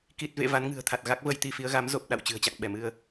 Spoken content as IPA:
ki˨˩t̚vḛ˧˨ va˨˦nŋɨ̤˨˩ə̯t̪ʰa˨˩t̚ ɣa˦˥k̚və˧jt̪i˧fi˨˦ə̯ ɣa˨˦mzo˨˩p̚ ɗa̰˧˨w t͡ɕɨ̤˨˩ə̯t͡ɕa̰˧˨ŋɓɛ˧˩mɨ˧ə̯

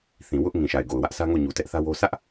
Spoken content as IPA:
θĩ˨ wʊ˦ʔ ŋĩ˨ʃa˨ɪ̯ɡo˨ʊ̯wä˦ʔ sä˦ŋo˦˨ɲu˨ tɛ˦ʔθä˦wo˦ sʰä˦ʔ

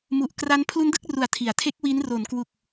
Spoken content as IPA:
mu˨˩ʔkra˦˥n pʰlu˦˥ndɯ˥˩k̚ru˨˩a̯ tʰi˩˦a̯tʰe˦˥k̚ wi˦˥n ro˩˦nkwu˨˩k̚

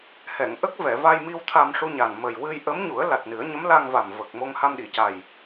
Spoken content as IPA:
hɛ˨˩˨ŋ ʔə˦˥k̚vɛ˨˩˨va˧jmi˧w t̪ʰa˧mʂu˧ɲa˨˩n mə˨˩jwɨ˧jʔə˧˥m ɲu˨˩˦ə̯la˨˩t̚ nɨ˨˩˦ə̯ ɲə˧˥mla˧ŋva˨˩m və˨˩k̚ mo˧ŋha˧mɗi˨˩˨ca˨˩j

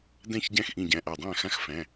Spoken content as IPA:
dæ̃˥˩çɟæ̃˥˩xʔĩ˧˩ɟæ̃˩˧˩ ʔa˧˩dˤæ̃˥˩xã˦˥x fæ̃˩˧˩

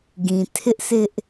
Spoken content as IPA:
ɡĩ˨ tʰɪ˦ʔsʰɪ˦ʔ

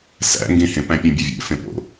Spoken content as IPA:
sæ̰ ŋɡĩhẽ pæ̃pʲũbʲuvʲḛ fẽpo̰

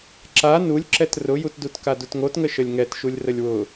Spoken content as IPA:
ǁa nulʲǁɛt rʊjutdut kadutŋotŋə ʃəlʲŋɛtʃulʲ rəlʲwʊ

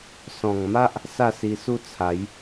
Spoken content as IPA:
sɔ̃˨˩ŋma˦ʔ | sa˥˧si˧su˥˧t͡sʰa˨˦j

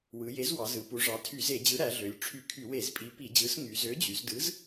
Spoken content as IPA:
wɯ˩˧ je˨˥zwɑ˩˧zɯ˩˧ pu˩˧ʐɑ˩˧ tʰy˧˩˧ze˧˩˧d͡ʑɯ˨˥ ɾæ˩˧ɮø˩˧lʲ ʈ͡ʂʰy˧˩˧kʰy˧˩˧we˧˩˧zpʼi˨˥ pi˧˩˧d͡ʑɯ˨˥s ŋy˨˥ zø˨˥d͡ʑy˩˧zdɯ˨˥z

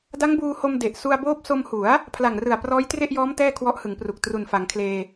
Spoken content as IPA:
da˦˥ŋbuː˧ho˧m de˨˩ʔ su˧a̯boː˦˥p̚ so˧mhu˩˦a̯ | pʰla˨˩ŋrɯ˨˩a̯ prɔː˦˥jtre˥˩ʔjɔː˦˥m tɛː˥˩kʰwɔ˦˥ʔhɯ˩˦ŋpru˨˩k̚ tru˨˩nfa˩˦ŋkʰleː˧

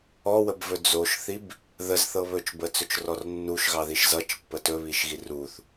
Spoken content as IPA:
ɔwəbvɵ d͡zoʃθib | ðəzθɤ βɵt͡ʃbət͡sɵt͡ʃrɔr nːuʃɣɑðiʃ zʌt͡ʃpːə tɵβiʃɣi ruθ

